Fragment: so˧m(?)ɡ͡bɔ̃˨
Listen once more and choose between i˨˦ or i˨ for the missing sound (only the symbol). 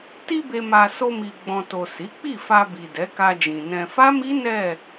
i˨